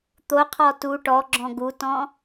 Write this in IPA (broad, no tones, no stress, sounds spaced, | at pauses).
t̪ o qʰ ɔ t u ʈ ɔ ɡ͡ǁ ɔ̃ ɡ u t ɔ̃